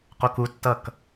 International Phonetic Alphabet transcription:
q o k u tː ʌ k

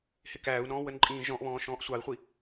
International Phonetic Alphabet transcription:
h ɪ k æː u̯ n ɔ̃ː w ə n ǃʼ ĩː ʒ ɔ̃ ʔ β ɔ̃ː ʃ ɔ̃ː ʔ sʷ ɑ i̯ χʷ i

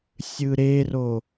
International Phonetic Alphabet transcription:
sʲ ɯ ɾ e r o

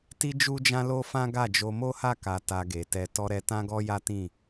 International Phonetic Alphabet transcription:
t i˦ d͡ʒ u˦ d͡ʒ ã˦ l o˦ f ã˦ ɡ a˦˨ d͡ʒ o˧ m o˦ h a˦˨ k a˨ t a˧ ɡ e˨ t ɛ˧ t ɔ˧ ɾ ɛ˧ t ã˦ ɡ ɔ˦ j a˦ t ĩ˦˨

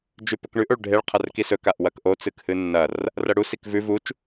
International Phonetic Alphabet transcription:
d͡ʒ ʉ p ɵ k ɳ ʉ ʔ o ɭ ɖʱ e ɭ qʰ ɐ r k i s ɵ k a ʔ w ɐ k ʔ o t͡s ɨ k h ɨ nː ɐ r | r ɐ ɽ u s i k v ʉ v u t͡ʃ

